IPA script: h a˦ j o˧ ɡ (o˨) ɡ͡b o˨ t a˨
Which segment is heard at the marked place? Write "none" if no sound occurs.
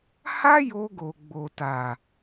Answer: o˨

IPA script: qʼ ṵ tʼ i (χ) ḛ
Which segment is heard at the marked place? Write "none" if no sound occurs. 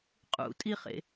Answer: χ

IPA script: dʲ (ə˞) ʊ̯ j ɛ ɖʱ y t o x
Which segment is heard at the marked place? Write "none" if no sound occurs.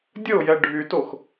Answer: ə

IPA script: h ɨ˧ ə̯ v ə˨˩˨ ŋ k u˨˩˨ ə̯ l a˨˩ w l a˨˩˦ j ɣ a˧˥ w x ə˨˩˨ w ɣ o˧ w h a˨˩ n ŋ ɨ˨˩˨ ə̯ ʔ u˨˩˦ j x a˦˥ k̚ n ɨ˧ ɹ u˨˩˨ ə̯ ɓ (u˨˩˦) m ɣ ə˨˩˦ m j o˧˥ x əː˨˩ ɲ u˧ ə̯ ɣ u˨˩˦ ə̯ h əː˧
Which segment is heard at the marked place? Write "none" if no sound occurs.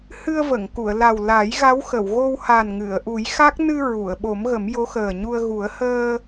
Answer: o˨˩˦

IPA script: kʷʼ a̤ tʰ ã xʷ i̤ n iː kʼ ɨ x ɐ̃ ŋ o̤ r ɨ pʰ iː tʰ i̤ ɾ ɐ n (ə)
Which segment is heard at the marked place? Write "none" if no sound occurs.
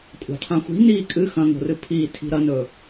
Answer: ɵ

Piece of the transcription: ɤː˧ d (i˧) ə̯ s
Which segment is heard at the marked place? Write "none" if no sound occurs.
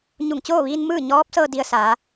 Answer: i˧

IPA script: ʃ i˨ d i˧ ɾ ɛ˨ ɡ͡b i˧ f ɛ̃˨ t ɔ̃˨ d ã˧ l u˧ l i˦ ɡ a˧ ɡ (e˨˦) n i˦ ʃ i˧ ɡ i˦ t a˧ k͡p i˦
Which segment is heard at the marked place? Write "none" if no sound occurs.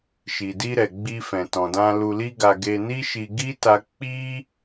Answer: e˧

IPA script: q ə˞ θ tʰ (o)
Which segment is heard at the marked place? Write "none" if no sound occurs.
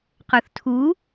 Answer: u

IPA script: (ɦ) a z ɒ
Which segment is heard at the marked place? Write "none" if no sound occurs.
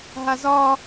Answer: ɦ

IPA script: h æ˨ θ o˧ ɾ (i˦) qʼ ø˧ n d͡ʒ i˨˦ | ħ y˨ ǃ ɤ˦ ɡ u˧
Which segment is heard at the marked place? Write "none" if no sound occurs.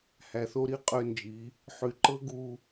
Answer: i˦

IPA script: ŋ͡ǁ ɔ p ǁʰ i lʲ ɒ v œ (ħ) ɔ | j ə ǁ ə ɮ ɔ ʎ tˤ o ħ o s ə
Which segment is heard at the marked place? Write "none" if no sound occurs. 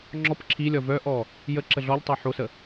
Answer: ʔ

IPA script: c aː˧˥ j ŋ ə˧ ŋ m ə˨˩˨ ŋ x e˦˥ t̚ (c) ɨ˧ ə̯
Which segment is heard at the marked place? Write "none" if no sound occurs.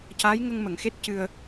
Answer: c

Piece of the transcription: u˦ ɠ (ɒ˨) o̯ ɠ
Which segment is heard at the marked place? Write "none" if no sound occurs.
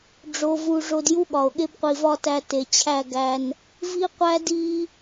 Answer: ɒ˨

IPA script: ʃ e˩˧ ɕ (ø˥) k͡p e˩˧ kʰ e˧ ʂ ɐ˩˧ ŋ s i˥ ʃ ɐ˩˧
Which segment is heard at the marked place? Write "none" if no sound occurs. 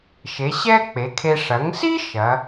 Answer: ɛ˥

